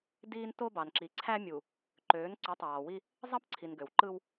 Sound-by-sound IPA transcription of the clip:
diː˦nto˦bɑ˨n ǁi˨ǀʰæ˦ mʲu˨ | ǃøː˨˦nǀu˨˦tˤɑː˨wi˦ | zˤɑ˦pǀʰi˨n ɡø˨w ǃɯ˦w

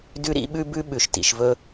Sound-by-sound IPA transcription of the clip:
dʉ˦ɾḭ˦ɓʉ˦bʉ˦ ɓʉ˨ʃtḭ˨ʃvɵ˦

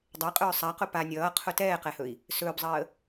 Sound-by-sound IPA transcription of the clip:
dˤɛqʼɵː sˤaqʊ pa nʲʌːqʰʊ tɛːqɛhɵi̯ | sɵːbzˤəː

